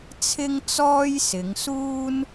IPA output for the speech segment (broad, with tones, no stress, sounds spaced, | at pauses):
t͡sʰ ɪ˥ ŋ t͡s ɔː˥ j s ɪ˨˧ ŋ s uː˥ n